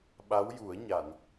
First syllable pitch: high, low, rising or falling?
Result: rising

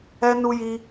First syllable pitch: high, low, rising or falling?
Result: high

